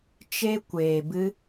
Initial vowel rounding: unrounded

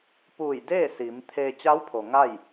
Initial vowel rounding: rounded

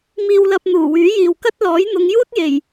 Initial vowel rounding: unrounded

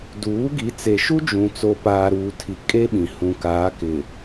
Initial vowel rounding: rounded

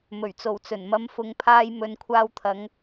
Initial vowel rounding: rounded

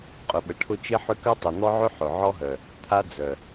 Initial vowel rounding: rounded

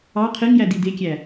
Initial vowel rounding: unrounded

